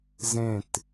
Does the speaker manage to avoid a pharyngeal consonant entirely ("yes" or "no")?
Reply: yes